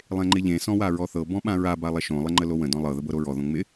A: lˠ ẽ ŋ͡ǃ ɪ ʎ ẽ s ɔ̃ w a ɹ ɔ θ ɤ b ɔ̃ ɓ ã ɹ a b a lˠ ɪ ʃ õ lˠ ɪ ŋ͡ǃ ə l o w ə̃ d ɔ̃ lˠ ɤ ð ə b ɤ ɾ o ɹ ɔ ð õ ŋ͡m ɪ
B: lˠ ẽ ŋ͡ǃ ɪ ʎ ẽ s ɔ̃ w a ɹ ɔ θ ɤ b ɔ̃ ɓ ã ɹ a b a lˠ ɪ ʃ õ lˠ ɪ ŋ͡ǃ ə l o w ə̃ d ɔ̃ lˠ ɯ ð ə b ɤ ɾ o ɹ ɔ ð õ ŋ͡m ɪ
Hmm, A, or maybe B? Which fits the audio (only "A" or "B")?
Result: A